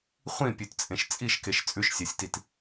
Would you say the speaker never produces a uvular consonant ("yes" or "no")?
no